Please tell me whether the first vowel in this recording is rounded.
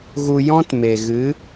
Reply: yes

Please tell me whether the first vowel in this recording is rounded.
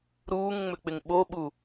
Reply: yes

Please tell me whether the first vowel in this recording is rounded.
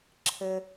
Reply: no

